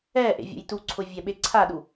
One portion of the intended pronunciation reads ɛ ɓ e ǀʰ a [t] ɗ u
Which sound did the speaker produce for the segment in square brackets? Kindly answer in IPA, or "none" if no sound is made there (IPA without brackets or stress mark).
none